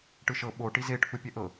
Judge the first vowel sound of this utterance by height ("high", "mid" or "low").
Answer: high